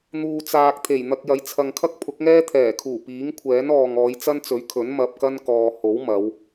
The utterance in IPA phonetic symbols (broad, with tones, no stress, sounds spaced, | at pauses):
n̪ uː˨ t͡s aː˨ k̚ t̪ʰ e˨˩ j n̪ ɐ˧ k̚ j ɐ˨˥ j t͡sʰ ɐ˨ ŋ kʰ ɐ˥ k̚ pʰ ʊ˨˥ k̚ ŋ ɛː˥ t̪ʰ ɛː˨˩ kʰ uː˨˩ p iː˨˥ ŋ kʷʰ ɛː˨˥ n ɔː˨ ŋ ɔː˨˧ j t͡s ɐ˥ n t͡s ɵ˨˥ ɥ kʰ ɵ˨˥ n m ɐ˧ p̚ k ɐ˥ n k ɔː˨ h o˨˥ w m ɐ˨˧ w